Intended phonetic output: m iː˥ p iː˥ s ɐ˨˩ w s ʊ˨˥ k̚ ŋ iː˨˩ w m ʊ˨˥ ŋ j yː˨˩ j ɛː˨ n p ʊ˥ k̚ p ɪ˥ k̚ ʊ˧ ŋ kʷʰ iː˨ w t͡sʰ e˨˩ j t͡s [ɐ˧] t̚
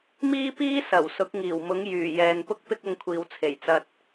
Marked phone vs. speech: correct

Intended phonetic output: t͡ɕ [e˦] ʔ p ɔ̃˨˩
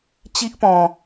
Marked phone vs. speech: incorrect: i˦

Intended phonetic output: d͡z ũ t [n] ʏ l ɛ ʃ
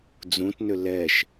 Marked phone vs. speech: correct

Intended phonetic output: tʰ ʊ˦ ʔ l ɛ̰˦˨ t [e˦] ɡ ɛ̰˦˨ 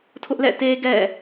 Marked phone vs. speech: correct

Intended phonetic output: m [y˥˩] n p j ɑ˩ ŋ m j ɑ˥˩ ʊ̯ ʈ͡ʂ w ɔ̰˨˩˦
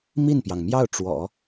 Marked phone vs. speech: incorrect: i˥˩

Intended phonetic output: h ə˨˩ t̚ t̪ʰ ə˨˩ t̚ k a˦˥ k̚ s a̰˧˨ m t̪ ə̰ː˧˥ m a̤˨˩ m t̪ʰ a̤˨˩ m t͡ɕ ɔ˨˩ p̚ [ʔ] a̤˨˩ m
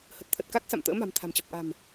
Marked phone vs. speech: correct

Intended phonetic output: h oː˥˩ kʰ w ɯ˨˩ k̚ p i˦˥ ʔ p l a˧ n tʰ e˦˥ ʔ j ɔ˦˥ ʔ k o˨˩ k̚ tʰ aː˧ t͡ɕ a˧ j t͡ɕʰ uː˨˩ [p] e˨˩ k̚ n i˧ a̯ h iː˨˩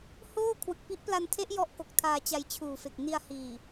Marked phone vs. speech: incorrect: f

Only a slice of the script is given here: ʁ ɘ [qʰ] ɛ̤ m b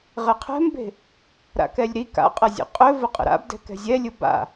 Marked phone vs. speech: correct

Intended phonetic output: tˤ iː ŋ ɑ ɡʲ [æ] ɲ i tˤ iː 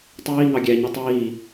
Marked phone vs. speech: correct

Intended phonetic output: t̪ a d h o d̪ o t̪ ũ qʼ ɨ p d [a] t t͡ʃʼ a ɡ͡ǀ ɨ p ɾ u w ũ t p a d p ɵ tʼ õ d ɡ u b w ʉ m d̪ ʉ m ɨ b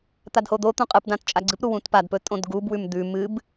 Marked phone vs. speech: incorrect: ã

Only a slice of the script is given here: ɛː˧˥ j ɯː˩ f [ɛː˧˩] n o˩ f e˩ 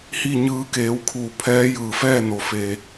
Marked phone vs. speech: incorrect: ɛː˥˨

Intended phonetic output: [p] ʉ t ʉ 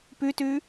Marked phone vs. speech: correct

